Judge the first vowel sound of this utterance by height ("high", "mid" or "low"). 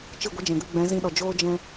high